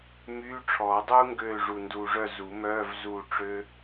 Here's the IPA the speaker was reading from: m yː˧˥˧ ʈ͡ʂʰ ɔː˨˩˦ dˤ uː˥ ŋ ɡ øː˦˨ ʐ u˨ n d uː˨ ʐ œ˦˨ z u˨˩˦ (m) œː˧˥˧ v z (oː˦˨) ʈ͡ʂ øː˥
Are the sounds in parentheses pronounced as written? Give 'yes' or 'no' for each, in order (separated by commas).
yes, no